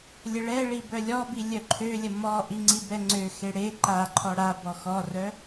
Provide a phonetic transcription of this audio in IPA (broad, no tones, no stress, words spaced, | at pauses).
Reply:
lʲəɭɛɭi bœlʲɔbi lʲœǃʰølʲə mɔʔi ŋ͡ǀibɛŋ͡ǀøxe ɽe ǃaǃʰɔ ɽa bɔxɔrœ